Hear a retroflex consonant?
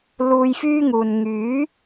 no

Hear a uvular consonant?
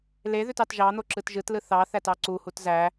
no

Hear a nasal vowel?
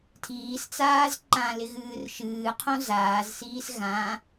yes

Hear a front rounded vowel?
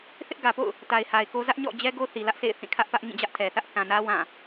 no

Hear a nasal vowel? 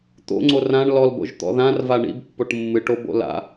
yes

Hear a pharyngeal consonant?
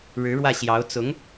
no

